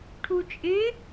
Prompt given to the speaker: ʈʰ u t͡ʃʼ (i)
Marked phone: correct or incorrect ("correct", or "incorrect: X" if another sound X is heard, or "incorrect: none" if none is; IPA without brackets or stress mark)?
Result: incorrect: ɪ